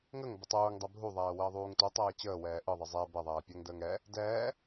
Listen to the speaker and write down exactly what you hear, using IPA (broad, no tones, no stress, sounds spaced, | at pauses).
ŋ ə ŋ b ə tˤ uː ŋ dˤ ɛ bʱ u ðˤ ɛː w əː ðˤ uː ŋ t u tˤ ɛː t͡ɕ əː w ɛː ʔ ɯ ðˤ ɯ zˤ ɛ b ɛ ðˤ ɛː pʲ ɛ ŋ d əː ŋ ɛ | d ɛː